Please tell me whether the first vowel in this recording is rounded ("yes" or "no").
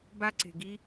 no